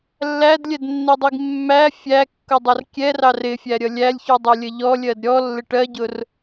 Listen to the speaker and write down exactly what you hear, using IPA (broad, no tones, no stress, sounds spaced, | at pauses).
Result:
lː æ d lʲ ɛ d nː i dˤ i ɡ mː æ fʲ æ kː ʊ dˤ ʌ r kʲ ɛ r ɑ r ɪ fʲ æ ɾʲ ʌ lʲ æ lʲ ç u dˤ u lʲ ə ʎ ɔ lʲ ɜ d ɾʲ ɔ lː ɪ ʈ ɜ ɟ ʊ r